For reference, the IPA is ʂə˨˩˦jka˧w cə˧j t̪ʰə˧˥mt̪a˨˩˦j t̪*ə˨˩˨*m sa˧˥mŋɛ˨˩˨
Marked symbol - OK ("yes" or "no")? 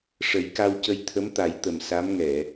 no